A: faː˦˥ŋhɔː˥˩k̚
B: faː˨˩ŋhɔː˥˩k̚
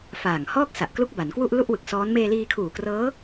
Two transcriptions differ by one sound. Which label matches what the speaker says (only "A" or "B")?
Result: B